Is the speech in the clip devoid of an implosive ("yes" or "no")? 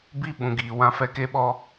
no